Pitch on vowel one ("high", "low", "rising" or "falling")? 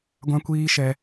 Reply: high